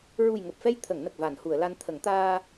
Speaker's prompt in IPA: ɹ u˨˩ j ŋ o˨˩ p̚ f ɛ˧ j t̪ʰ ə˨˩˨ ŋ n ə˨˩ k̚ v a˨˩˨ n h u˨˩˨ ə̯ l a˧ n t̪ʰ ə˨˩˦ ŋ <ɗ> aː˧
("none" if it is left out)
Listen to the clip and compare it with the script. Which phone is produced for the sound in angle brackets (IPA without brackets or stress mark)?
t̪